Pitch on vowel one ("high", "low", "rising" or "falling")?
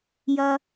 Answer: low